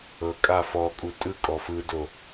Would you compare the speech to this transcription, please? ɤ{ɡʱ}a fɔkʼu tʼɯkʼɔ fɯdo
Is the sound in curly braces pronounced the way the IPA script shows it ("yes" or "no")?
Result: no